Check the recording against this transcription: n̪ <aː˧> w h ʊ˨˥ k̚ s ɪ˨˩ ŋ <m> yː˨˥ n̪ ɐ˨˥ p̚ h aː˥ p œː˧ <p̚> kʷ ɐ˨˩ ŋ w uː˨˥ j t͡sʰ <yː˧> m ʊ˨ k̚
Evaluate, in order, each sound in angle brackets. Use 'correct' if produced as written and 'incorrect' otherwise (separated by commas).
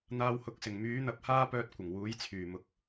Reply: correct, correct, incorrect, incorrect